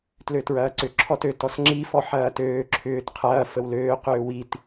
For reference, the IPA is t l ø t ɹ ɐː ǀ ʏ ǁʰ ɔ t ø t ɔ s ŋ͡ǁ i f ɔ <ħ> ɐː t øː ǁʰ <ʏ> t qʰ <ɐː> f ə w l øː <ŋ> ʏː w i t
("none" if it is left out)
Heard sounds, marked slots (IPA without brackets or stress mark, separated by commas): ħ, ʏː, ɐː, q